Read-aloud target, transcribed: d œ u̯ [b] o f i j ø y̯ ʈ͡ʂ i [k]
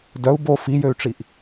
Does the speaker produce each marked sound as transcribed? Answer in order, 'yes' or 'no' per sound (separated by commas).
yes, no